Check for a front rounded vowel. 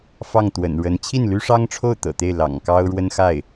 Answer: present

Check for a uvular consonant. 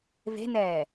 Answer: absent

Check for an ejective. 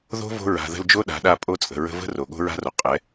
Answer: present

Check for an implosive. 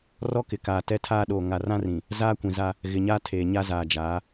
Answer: present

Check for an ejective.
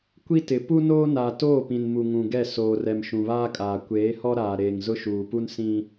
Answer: present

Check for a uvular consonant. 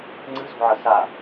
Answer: absent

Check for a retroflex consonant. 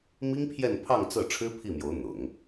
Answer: present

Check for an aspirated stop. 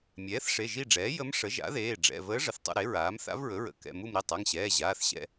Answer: absent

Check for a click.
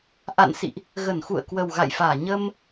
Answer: absent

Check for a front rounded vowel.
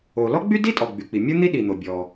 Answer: present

